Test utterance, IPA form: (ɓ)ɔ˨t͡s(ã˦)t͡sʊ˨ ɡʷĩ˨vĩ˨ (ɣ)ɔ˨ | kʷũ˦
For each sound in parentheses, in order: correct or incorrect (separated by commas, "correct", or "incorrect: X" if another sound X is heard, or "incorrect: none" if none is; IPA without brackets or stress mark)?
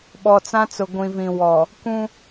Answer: correct, correct, incorrect: w